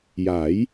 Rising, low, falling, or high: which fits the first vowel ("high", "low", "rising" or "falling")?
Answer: rising